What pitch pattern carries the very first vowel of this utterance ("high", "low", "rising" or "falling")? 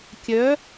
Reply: rising